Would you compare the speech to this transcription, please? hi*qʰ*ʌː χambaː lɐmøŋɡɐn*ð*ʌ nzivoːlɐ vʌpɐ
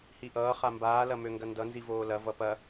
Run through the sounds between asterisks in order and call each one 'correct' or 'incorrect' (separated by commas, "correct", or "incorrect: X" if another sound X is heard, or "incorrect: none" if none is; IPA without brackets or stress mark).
incorrect: ʔ, incorrect: d